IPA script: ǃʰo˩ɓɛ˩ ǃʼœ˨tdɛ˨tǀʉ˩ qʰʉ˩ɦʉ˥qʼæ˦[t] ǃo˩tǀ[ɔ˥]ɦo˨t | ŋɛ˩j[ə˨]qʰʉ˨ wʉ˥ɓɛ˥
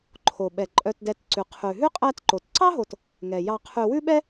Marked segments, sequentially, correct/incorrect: correct, incorrect: ɑ˥, incorrect: ɑ˨

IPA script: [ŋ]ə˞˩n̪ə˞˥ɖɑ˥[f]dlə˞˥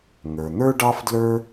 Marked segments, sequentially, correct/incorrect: correct, correct

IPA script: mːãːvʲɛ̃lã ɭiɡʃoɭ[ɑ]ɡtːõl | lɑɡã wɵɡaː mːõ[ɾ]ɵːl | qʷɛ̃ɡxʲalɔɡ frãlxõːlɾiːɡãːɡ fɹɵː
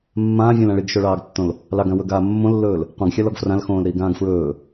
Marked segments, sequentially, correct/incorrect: incorrect: ɑː, incorrect: lː

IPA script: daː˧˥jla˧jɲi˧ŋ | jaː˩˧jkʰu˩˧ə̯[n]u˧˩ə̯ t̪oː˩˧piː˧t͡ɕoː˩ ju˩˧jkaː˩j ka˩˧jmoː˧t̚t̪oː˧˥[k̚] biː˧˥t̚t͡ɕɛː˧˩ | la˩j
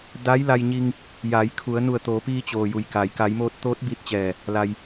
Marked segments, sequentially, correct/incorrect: correct, incorrect: t̚

